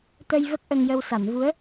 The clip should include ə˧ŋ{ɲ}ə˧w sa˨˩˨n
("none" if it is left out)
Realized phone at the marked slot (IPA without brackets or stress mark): j